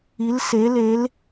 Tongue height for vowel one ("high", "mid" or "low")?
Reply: high